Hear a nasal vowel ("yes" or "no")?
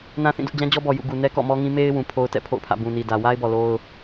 yes